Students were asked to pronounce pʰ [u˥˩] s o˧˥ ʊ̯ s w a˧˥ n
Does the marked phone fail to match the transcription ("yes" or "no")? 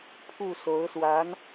no